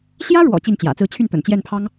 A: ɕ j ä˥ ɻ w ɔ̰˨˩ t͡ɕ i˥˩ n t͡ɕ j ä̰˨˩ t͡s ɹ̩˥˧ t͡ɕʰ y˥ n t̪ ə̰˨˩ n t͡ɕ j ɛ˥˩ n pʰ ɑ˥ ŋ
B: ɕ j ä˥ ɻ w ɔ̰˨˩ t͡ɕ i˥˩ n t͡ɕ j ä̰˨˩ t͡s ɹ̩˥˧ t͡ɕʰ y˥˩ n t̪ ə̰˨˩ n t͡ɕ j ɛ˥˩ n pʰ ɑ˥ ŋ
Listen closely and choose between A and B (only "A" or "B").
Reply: B